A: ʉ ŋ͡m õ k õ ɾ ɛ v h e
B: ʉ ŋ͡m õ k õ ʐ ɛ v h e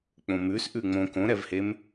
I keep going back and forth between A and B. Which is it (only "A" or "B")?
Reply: A